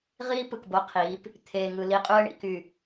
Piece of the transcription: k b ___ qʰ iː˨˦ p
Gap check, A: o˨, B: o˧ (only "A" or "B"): B